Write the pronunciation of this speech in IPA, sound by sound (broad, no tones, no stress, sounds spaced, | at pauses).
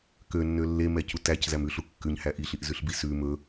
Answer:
k ø nː ø lː e m ɛ c u t æ c z æ m ʉ ɬ u kː ʉ ɲ h æ ʔ i ɬ i ʔ z ʉ ɬ b i s ʉ m ɵ